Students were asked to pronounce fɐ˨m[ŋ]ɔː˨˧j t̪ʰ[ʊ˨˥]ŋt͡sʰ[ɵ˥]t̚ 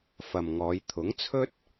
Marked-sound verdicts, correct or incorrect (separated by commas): correct, correct, correct